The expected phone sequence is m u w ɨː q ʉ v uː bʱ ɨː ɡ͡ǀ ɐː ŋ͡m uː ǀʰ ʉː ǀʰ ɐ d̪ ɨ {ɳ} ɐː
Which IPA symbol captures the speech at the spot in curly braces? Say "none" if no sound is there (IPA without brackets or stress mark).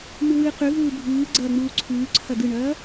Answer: ɳ